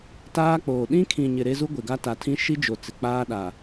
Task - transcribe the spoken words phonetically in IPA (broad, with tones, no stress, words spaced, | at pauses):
taː˦k͡poː˨ ɗĩ˦kʰĩ˨ɲɪ˨ ɾe˦zu˦ ɡʷe˨ɡa˦ta˨tʰĩ˦ ʃi˦d͡ʒo˨ t͡sɪ˨k͡paː˦ɗa˨